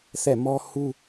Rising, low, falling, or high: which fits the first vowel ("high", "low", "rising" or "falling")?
falling